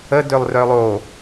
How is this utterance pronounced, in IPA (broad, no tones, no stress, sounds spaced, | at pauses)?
ə d ø lˠ r œ lˠ o